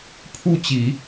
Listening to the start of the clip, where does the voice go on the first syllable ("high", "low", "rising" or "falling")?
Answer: falling